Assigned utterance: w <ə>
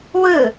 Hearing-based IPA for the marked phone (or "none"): ɯ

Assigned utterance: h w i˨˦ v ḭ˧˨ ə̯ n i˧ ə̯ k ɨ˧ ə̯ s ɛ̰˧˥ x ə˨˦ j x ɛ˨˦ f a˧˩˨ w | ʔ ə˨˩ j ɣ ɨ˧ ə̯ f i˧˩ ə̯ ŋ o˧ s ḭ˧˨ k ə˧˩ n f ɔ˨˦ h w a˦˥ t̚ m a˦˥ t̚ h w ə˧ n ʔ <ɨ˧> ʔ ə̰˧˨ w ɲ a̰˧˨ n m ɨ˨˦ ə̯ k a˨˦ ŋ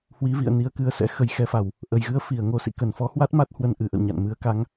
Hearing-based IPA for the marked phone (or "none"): ɨ˨˩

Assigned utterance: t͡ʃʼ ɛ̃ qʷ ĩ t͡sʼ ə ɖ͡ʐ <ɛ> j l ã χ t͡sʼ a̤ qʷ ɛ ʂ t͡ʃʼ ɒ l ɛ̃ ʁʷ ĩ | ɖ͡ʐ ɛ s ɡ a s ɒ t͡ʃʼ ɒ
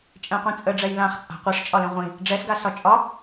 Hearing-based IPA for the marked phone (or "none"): ɛ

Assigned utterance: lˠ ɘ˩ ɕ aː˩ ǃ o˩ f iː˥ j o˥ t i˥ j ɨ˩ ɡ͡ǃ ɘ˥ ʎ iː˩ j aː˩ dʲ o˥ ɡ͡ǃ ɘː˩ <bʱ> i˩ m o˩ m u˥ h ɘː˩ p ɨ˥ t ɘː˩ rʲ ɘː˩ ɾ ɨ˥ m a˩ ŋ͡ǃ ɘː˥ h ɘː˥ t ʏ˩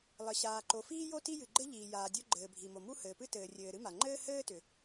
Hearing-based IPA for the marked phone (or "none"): bʱ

